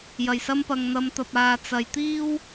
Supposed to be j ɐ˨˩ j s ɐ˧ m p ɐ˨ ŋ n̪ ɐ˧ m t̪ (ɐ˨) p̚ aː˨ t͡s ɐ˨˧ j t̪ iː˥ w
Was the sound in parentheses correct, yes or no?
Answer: yes